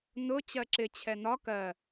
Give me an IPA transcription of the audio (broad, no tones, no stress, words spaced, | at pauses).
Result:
nʊ t͡ɕɜǁɪ t͡ɕʰɛnɒ kɜ